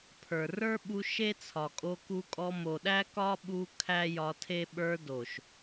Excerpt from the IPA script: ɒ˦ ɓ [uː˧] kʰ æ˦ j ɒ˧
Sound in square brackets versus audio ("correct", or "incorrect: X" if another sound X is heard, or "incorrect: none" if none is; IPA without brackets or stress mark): incorrect: u˧